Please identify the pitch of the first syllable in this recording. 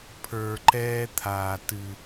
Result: low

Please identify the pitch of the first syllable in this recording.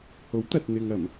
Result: rising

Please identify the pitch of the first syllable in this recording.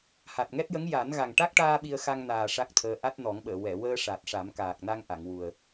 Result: low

